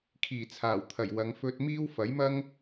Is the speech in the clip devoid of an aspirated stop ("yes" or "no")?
no